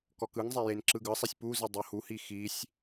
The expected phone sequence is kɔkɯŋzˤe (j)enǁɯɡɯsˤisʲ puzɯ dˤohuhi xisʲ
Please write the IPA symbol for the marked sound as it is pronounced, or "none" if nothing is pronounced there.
j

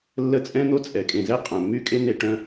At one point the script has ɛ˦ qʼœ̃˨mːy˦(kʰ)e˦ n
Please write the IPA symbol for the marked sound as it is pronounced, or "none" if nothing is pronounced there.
kʼ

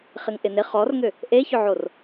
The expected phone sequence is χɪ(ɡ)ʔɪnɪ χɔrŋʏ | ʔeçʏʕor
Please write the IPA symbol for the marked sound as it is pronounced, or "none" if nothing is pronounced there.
ŋ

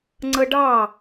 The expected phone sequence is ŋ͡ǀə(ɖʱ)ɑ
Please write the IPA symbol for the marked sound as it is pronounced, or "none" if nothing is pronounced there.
ɖ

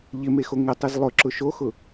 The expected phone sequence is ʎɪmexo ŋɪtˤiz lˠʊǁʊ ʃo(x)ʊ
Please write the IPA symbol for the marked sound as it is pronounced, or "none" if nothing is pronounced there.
x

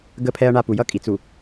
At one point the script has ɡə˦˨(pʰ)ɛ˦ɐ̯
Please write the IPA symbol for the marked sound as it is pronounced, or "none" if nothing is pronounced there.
pʰ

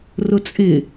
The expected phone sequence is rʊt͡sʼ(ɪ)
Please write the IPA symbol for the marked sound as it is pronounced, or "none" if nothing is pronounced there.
ɪ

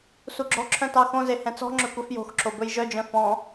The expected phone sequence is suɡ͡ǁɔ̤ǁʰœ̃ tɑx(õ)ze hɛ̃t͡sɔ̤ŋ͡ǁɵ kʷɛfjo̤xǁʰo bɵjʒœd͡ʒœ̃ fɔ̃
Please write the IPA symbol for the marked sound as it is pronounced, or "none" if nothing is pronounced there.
õ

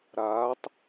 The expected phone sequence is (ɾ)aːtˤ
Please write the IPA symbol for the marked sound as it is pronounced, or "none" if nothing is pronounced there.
ɾ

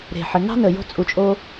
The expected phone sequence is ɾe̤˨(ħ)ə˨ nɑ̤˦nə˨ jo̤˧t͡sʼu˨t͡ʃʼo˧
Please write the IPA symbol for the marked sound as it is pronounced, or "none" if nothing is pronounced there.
ħ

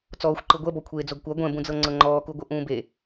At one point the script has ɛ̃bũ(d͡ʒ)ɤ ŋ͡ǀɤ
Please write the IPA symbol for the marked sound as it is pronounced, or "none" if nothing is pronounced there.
d͡z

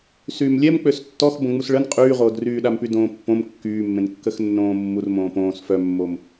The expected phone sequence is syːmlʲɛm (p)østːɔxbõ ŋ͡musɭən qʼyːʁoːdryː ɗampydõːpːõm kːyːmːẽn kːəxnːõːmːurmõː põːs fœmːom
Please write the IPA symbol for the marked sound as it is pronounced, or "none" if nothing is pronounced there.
k͡p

